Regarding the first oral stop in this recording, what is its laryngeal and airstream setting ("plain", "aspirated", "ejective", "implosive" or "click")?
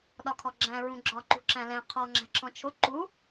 implosive